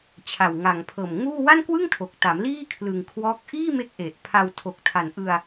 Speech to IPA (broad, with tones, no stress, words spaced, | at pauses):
t͡ɕʰa˨˩wŋa˨˩ŋpʰɤː˨˩m ŋuː˥˩ wa˥˩nkwɯ˥˩ŋtʰo˨˩k̚ta˩˦m liː˥˩kʰlɯ˨˩ŋ kʰwɔː˦˥k̚ ʔiː˥˩me˦˥k̚ ʔe˨˩ʔpʰa˧w tʰo˨˩k̚tʰa˨˩nʔɯ˧a̯